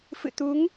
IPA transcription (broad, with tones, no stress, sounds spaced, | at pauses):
f ɨ̰˧˨ t̪ u˨˦ ŋ